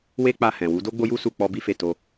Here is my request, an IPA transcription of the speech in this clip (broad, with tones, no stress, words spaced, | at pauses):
we˦k͡pa˧hɛ̃˨wu˨˦ do˦ɡ͡bo˦ju˦ su˦˨k͡pɔ˧bi˦fe˦˨ to˧